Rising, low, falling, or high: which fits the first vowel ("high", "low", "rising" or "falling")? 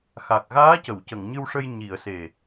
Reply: low